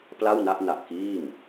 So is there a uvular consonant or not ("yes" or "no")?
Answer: no